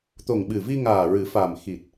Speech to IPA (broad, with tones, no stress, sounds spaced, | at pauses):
t̪ o˨˩ ŋ ɓ ɨ˨˩ v i˧ ŋ aː˨˩ ɹ ɨ˨˩˦ f a˨˩ m x i˨˩ t̚